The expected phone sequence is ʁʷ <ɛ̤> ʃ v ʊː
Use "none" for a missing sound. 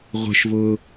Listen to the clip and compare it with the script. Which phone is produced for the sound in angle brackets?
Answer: ɛ̤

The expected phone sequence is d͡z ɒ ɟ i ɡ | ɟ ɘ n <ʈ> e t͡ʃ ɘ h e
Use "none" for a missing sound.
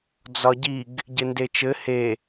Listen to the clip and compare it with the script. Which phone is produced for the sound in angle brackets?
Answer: d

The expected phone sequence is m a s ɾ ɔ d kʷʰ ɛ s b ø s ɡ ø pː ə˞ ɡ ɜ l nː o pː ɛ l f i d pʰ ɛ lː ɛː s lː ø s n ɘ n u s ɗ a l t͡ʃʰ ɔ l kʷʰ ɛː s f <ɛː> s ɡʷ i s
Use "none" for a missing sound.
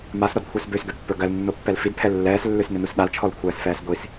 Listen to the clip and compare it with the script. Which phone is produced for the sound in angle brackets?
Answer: ɛː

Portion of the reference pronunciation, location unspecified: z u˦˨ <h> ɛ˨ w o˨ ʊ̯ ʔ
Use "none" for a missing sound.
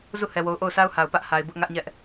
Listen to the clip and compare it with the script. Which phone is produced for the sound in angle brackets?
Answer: h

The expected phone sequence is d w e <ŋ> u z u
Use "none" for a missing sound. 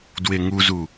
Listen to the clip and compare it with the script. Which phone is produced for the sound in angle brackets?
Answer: ŋ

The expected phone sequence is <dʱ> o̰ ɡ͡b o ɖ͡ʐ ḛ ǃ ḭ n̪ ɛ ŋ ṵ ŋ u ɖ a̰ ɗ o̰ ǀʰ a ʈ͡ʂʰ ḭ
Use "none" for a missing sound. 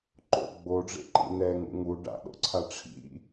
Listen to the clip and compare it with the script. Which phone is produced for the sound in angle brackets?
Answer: ǃ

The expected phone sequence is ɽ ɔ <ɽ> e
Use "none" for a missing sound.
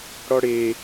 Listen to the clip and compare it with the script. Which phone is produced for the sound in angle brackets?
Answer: ɽ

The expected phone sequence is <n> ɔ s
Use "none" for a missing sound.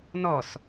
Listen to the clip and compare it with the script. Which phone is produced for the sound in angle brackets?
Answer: n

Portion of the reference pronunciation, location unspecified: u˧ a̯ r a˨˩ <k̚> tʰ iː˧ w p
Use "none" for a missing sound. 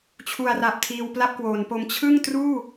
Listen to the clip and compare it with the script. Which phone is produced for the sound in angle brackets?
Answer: p̚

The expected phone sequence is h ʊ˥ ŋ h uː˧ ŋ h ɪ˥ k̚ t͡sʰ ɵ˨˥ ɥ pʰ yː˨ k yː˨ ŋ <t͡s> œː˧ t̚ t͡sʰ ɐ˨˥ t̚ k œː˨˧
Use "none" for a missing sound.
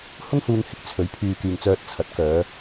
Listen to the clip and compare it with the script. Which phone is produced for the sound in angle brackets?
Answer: t͡s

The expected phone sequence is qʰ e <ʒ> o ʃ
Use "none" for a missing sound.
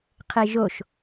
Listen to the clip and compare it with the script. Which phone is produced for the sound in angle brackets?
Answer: ʒ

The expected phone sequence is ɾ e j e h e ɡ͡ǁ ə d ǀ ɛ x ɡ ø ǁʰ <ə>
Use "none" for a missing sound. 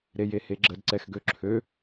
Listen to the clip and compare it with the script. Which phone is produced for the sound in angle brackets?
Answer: ø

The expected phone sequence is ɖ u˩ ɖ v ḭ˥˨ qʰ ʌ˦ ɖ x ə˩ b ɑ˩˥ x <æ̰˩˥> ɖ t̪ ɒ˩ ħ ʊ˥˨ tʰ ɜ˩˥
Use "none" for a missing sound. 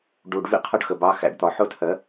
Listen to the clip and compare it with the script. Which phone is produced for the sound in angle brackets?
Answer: æ̰˩˥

